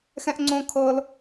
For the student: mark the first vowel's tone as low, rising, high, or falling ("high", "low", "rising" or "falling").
high